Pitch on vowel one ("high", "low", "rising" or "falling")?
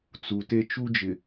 low